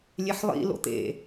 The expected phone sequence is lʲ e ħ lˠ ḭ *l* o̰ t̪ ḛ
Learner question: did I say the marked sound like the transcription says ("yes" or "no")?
yes